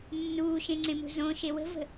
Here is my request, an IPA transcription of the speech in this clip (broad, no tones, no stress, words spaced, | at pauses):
nːuːʃẽŋ͡ǀẽmṳ zõʃe wə̤və̤